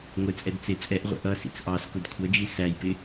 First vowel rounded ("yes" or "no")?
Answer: no